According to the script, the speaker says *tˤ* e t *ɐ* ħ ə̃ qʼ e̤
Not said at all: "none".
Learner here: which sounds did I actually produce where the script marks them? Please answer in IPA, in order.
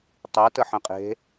tˤ, ə

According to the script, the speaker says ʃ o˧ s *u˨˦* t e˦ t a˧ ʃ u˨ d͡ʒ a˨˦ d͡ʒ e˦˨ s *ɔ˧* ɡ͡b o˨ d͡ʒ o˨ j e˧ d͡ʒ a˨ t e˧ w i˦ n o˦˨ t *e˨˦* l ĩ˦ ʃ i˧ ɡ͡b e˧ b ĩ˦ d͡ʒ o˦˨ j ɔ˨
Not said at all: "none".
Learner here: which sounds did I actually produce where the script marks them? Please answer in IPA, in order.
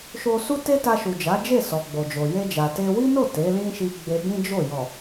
u˦, ɔ˨, e˨˦

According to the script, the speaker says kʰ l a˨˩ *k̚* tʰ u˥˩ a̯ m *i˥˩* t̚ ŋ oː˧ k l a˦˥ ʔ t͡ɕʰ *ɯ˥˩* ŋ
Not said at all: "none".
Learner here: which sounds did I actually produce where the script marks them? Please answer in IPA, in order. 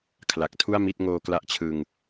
k̚, i˥˩, ɯ˧

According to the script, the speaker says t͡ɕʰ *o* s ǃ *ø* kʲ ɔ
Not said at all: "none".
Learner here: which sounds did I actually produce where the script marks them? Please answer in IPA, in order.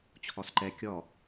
ɔ, ɛ

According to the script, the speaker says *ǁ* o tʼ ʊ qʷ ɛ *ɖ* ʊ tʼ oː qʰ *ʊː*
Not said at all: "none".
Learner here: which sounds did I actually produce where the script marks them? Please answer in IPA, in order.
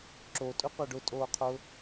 ǁ, ɖ, ʊː

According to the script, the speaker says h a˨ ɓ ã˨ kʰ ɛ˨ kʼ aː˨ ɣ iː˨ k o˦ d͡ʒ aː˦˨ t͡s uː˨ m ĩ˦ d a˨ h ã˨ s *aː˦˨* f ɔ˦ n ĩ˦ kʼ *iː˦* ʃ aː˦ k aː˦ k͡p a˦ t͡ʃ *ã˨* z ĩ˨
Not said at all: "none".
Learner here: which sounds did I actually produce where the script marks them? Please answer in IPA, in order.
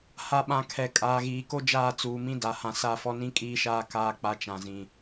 a˦˨, iː˦, ã˨

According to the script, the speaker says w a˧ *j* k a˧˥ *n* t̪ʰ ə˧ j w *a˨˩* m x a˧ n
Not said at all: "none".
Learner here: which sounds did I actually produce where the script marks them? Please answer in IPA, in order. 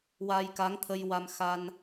j, ŋ, a˧

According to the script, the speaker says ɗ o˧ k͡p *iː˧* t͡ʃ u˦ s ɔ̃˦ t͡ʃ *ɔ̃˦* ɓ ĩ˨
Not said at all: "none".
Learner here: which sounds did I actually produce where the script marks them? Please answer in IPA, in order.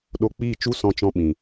iː˦˨, ɔ̃˦

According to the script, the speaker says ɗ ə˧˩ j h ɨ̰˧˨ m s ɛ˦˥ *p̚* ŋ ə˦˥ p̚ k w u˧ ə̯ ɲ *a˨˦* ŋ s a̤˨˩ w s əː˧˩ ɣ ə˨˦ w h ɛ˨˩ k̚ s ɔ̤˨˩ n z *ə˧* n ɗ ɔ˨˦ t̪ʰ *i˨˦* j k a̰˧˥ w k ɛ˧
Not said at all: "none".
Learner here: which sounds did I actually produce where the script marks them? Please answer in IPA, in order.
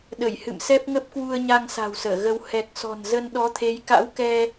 p̚, a˧, ə˧, e˨˦

